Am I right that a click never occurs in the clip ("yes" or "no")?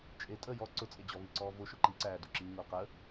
no